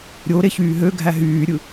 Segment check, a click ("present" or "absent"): absent